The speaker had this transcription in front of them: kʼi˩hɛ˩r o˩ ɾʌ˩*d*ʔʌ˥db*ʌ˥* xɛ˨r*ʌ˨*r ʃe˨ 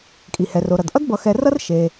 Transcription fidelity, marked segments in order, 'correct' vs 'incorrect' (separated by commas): correct, incorrect, incorrect